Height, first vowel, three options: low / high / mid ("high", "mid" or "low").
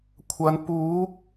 low